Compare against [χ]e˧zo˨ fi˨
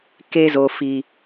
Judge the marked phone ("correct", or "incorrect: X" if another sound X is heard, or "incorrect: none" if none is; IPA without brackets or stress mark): incorrect: k